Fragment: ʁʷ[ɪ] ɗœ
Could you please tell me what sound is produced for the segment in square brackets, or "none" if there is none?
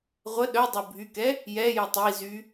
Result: ə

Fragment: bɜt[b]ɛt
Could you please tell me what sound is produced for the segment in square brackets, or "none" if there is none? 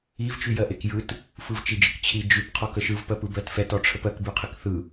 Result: f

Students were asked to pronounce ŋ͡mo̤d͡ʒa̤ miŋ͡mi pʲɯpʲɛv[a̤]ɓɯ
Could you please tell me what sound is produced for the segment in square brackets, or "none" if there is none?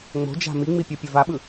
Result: a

